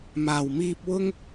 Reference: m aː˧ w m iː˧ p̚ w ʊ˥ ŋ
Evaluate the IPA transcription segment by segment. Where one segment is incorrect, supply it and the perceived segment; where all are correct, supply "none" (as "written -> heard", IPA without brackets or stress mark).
aː˧ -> aː˨˩